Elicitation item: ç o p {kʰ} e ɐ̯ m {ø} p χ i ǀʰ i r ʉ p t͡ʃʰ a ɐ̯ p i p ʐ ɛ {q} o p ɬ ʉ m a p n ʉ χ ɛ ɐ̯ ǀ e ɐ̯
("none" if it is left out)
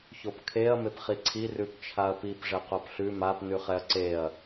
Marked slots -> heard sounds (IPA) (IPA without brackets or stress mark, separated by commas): kʰ, e, q